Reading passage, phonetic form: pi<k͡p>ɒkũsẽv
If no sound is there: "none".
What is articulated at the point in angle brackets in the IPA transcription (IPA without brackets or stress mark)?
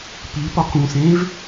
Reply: p